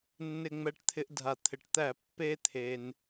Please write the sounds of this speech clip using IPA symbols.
nː ɪ˧˩ ŋ͡m ɛ˧˩ ʈ t̪ʰ ɪ˧ ʔ dʱ a˩ t̪ʰ ɪ˩ ʈ t̪ æ˧˩˧ pː e˧ t̪ʰ e˩ n

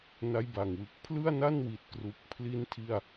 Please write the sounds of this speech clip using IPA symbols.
n a˦˥ j b a˨˩ ŋ w ɯ˨˩ k̚ pʰ l ɯ˥˩ a̯ n a˥˩ n w i˨˩ t̚ k r u˨˩ k̚ pʰ l i˦˥ n tʰ i˥˩ a̯

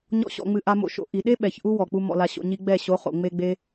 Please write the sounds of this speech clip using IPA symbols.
ɲ ɔ̰˦ ɕ ɔ̰˧ ŋ͡m ɨ˧ ʔ a˧ m o̰˧ ʃ o̰˧ ʔ i˨ ɗ e˦ ɓ ɛ˨ ç ʔ u˦ w ɔ˨ k͡p u˧ m ɔ̰˧ l a˧ ɕ o̰˧ ɲ i˦ ɡ͡b ɛ˦˨ ɕ o˨˦ χ o̰˨ ŋ͡m e˦ ɡ͡b e˦

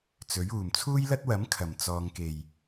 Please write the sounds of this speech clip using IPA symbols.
t͡s ɵ˨˥ ɥ uː˨˩ m t͡sʰ uː˥ j l ɐ˥ t̚ w ɐ˨˥ m kʰ ɐ˨˩ m t͡s ɔː˨ ŋ k e˨˩ j

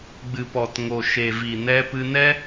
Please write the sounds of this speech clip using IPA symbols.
ɡ͡b ɨ˨ p ɔ˨ t ŋ o˨ ʃ e˨ v i˨ n ɛ˧ p ɨ˧ n ɛ˦

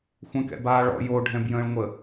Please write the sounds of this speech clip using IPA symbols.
xʷ ɛ̃ k ɛ̰ b aː ɭ ɔ̰ j o ɖʱ ɛ̃ b j ə̃ː ɭ ŋʷ ə

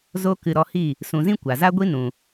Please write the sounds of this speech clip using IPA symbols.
z o˦ k ɨ˧ ɾ ɔ˧ h i˦˨ | s ũ˧ z ĩ˦ kʷ a˨ z a˦ ɡʷ i˦ n ũ˨

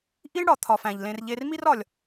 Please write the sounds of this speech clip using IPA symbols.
ʔ i˥ ɳ ɽ ɒ˩ t̪ʰ ɒ˨ f æ̃˩ ʎ l ẽ˨ r ʎ e˨ r m i˦ r ɒ˩ lʲ

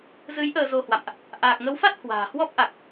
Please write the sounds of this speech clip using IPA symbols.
z ɨ˨˦ j ʔ əː˧ z o˧ h w a̰˧˨ m ʔ | ʔ aː˨˩ k̚ ŋ ə˨˦ w f a˦˥ t̚ h w a̤ː˨˩ h w ɔ˦˥ p̚ ʔ a˨˩ k̚

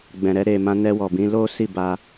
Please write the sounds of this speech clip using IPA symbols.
ɡ͡b ɛ̃˨ ɾ ɛ˧ ɾ e˨ m ã˧ n ɛ˧ w ɔ˨ b ĩ˨˦ l o˦ s i˦˨ b a˧

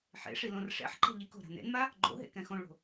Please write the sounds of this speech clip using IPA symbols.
ħ ḛ ʂ i l õ r ʂ ɛ̰ ħ ǃ ɛ̤ ʎ i k o̤ ɾ a̤ n ḛ n m a | ɡ͡ǃ o̰ ɦ ḛ k ɛ̃ x õ ɭ o̤

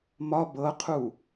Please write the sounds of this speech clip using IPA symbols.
m ɒ b ɤ qʰ u

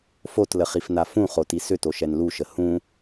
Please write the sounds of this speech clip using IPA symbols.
f o t l ə χ i f n a f ũ χ o t i s ʏ t o ʃ ɛ n l u ʃ ə h ũ

